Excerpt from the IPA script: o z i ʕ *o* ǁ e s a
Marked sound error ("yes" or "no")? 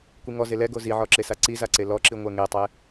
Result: yes